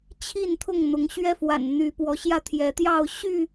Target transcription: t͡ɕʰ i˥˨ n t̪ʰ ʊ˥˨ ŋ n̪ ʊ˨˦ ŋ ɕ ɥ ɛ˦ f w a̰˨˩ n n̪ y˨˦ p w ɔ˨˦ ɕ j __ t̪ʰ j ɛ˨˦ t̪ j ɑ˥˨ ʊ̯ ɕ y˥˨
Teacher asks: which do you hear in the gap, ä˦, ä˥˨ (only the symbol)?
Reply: ä˥˨